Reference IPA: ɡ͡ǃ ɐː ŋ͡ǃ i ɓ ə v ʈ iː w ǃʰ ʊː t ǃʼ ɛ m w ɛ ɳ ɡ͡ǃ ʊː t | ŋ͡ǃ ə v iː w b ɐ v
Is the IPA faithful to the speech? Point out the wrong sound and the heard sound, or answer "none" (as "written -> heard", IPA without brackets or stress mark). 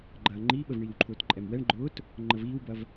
ʈ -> ɳ